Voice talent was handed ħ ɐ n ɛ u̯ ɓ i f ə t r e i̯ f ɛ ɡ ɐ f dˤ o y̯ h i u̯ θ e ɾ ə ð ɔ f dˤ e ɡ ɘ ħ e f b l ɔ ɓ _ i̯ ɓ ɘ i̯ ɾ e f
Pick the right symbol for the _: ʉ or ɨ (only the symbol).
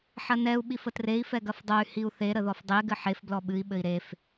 ɨ